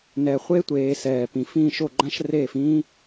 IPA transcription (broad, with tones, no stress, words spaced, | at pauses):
nɛ˨χʷe˦tʷeː˨ sɛː˨ pĩ˨fĩː˦˨ʃo˦˨ɡ͡ǃã˦ʃ reː˦˨fĩː˦